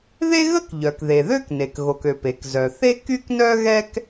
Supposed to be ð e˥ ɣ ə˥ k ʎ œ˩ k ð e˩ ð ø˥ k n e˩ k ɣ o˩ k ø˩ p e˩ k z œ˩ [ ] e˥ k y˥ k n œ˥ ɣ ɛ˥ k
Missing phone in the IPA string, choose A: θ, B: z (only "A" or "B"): A